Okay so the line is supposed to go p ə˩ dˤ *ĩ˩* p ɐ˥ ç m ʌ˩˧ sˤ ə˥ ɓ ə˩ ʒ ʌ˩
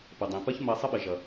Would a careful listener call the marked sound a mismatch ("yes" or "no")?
no